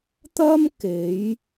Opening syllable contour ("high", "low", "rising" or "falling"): high